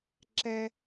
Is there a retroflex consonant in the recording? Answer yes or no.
no